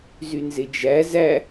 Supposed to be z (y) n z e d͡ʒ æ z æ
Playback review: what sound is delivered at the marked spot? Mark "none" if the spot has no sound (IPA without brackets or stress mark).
y